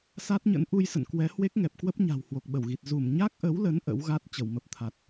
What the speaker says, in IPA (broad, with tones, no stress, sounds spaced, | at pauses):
s a˦˥ t̚ ɲ ə̰˧˥ n ʔ u˧ j s ə̰˧˨ n k w ɛ˨˦ h w e˦˥ k̚ ŋ ɛ˨˩ p̚ k w ə˦˥ p̚ ɲ a̤˨˩ w h w o˨˩ k̚ ɓ ə˧˩ w ɣ i˨˩ t̚ z u˧˩ m ɲ a˦˥ k̚ ʔ ə˨˦ w l ə˨˦ n ʔ ə̰˧˥ w ɣ a˦˥ t̚ t͡ɕ ə˧˩ w m ə˨˩ p̚ t̪ʰ a˨˩ t̚